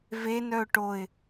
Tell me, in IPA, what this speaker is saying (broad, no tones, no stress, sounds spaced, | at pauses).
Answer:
v e n œ ʊ̯ ʈ o ɪ̯